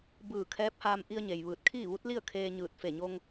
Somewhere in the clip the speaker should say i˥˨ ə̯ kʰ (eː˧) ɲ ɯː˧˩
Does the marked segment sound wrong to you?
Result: no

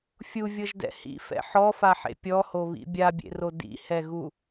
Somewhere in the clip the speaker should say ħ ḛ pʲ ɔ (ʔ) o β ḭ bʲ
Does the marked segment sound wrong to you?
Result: yes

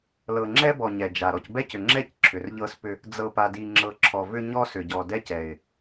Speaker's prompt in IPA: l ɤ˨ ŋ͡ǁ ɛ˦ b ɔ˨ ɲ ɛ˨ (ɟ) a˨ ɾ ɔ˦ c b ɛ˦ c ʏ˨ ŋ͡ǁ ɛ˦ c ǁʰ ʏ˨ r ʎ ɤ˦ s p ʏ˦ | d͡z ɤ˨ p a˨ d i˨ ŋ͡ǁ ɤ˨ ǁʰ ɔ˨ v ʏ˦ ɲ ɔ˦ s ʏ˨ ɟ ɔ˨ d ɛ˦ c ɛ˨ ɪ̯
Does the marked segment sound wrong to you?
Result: yes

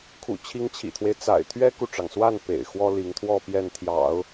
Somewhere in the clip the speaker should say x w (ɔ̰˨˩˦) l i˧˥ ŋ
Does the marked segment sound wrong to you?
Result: yes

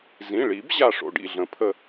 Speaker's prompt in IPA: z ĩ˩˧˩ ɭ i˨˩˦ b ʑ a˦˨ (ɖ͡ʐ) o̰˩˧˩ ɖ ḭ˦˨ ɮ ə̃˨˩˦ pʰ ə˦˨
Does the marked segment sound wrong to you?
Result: yes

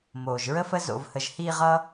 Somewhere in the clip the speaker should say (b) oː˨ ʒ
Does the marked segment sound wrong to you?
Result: yes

